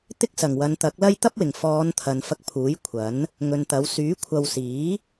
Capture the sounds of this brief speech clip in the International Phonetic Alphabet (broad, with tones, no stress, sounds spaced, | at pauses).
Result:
t̪ ɪ˥ k̚ s ɐ˨˩ ŋ w ɐ˨˧ n t̪ ɐ˨˥ k̚ l ɐ˥ j t̪ ɐ˥ p̚ w ɪ˨˩ ŋ f ɔː˨˧ n t̪ʰ ɐ˨ n f ɐ˧ k̚ pʰ uː˨˥ j kʷʰ ɐ˨˥ n | ŋ ɵ˨ n t̪ ɐ˨˥ w s yː˨˥ kʷʰ ɐ˧ w s iː˨˥